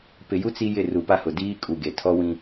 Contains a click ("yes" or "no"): no